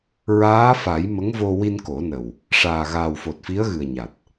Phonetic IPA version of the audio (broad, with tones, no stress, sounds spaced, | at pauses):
ɹ aː˧˥ f a˨˩˦ j m ə˧˥ ŋ v o˧ w i˧ n k o˨˩˦ n ə˨˩ w | ʂ aː˨˩ ɣ aː˨˩ w f o˨˩ t̚ f i˧˥ ə̯ ɣ ɨ˨˩ ə̯ ɲ a˨˩ t̚